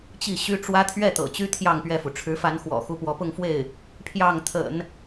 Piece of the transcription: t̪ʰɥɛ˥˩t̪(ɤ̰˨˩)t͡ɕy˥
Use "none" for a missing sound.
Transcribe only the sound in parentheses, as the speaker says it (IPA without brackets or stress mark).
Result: ɤ̰˨˩